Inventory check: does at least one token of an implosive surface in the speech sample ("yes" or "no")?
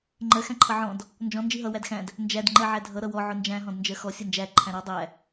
no